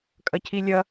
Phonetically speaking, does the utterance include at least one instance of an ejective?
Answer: yes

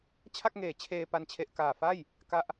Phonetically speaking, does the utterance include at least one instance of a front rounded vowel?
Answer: no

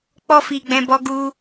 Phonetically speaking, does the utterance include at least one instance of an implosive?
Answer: no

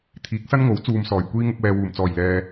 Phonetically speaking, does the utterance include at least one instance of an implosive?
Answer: no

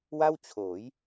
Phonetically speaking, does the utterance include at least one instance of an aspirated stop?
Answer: yes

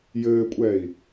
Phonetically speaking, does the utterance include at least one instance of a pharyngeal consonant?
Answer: no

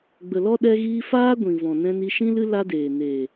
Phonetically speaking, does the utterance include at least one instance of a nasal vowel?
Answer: yes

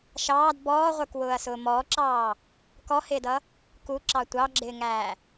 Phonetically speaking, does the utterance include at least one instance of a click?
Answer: yes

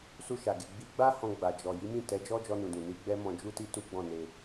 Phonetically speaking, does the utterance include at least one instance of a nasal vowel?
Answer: yes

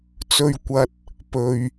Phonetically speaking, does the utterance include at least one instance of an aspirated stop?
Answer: no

